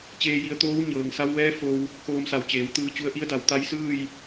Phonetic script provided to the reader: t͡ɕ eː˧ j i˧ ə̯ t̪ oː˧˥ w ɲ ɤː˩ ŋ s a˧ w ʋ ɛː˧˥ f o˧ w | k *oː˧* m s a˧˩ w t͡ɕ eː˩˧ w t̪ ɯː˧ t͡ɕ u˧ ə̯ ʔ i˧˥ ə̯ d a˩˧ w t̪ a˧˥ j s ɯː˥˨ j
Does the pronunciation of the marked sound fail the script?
no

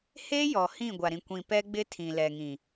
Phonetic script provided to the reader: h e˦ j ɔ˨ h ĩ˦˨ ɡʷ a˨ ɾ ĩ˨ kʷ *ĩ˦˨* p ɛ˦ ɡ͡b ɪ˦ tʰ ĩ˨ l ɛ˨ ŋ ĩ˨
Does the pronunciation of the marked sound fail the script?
yes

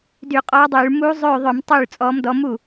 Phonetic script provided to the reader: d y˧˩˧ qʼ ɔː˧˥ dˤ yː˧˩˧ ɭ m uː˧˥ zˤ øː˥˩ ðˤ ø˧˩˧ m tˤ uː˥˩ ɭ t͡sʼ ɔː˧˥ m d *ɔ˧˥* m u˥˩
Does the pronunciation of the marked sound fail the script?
no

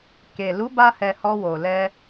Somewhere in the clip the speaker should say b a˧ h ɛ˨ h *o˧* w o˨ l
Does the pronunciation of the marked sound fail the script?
yes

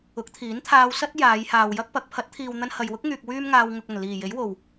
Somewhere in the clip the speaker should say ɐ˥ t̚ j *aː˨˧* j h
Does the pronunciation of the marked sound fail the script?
no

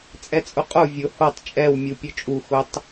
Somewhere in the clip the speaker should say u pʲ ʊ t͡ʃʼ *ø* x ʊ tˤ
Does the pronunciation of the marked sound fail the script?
yes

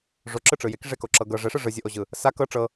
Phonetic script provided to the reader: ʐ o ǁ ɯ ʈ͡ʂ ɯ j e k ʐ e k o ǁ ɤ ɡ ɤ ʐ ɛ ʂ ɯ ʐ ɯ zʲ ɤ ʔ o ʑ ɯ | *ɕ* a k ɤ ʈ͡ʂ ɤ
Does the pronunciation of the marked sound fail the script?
yes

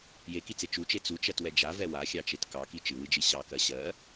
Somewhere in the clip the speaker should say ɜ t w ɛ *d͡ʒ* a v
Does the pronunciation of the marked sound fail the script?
no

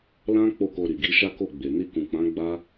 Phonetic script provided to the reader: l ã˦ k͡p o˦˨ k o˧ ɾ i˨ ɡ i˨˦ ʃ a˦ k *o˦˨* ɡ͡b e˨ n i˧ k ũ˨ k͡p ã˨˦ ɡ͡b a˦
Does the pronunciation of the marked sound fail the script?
no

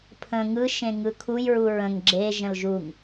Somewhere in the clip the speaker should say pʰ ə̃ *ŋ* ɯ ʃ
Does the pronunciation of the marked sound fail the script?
no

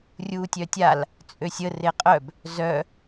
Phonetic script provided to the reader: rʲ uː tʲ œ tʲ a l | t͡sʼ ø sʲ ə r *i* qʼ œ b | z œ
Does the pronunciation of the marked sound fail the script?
yes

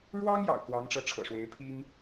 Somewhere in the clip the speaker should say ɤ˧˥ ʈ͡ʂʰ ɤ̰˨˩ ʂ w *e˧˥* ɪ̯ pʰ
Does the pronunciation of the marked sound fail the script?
no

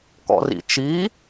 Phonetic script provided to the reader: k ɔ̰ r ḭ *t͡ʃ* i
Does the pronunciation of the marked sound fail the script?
no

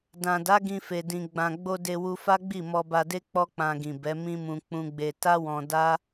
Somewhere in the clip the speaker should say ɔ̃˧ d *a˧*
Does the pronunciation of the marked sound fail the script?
yes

